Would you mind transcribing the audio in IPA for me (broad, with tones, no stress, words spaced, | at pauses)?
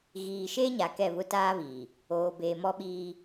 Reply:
ɣiː˨ʃeː˦ɲa˨ kɛ˦˨βʊ˦taː˦βiː˨ | oː˨beː˨ mɔ˦ ɓiː˦